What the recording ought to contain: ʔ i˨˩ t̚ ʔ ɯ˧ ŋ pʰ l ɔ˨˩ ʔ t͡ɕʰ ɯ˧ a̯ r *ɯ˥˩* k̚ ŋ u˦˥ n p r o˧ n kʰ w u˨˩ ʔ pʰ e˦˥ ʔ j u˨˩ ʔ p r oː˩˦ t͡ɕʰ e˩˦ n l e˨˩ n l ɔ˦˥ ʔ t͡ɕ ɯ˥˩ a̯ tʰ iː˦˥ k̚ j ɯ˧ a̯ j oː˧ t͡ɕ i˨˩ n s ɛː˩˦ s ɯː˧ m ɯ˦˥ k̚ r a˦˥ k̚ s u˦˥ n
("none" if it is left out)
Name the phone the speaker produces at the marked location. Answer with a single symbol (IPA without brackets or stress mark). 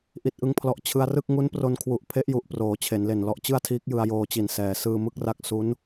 ɯ˥˩